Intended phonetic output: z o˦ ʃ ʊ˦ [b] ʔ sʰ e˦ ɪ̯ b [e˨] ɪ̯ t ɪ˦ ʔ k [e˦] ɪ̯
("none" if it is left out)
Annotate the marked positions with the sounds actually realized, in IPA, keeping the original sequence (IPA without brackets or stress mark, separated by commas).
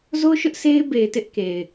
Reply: none, e˨, e˨